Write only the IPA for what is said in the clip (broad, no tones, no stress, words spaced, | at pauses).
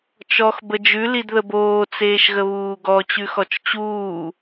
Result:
t͡ʃɔx bəd͡ʒʉ lidðəboː t͡seːʃɣəβuːɡɔ t͡ɕʉxɔt͡ʃt͡ɕuː